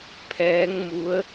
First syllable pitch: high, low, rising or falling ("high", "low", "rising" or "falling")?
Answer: rising